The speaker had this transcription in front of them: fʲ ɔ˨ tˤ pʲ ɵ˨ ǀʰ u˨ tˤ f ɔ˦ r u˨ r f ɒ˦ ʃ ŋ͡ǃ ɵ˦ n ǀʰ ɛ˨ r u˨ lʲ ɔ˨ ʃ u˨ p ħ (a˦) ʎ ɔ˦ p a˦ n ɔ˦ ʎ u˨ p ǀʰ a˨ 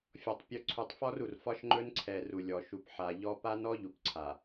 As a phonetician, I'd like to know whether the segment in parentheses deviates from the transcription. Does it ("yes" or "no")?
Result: yes